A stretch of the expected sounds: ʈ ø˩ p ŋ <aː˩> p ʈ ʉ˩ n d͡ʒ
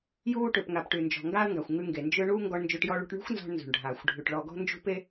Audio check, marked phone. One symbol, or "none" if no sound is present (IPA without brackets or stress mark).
a˩